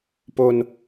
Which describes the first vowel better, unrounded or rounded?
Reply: rounded